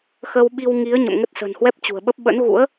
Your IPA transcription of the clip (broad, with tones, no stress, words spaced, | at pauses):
xə˧wɓi˧w ŋi˨˦ə̯ ɲə̰˧˨mŋə˦˥t̚sə̤˨˩n hwɛ˦˥p̚t͡ɕṳ˨˩ə̯ɓə˦˥p̚ ɓə̰˧˥nɣṵ˧˥ə̯